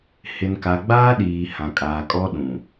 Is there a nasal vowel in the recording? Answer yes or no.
yes